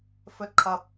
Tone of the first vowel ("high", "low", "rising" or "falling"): high